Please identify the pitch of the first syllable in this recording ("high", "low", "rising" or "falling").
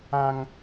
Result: high